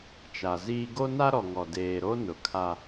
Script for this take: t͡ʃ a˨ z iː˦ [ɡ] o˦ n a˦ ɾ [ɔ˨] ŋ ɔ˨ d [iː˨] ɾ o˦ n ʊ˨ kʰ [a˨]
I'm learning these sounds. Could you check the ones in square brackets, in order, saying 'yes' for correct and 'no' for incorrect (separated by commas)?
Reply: yes, yes, no, no